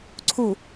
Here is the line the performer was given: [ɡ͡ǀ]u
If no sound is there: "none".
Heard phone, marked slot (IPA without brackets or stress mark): ǀʰ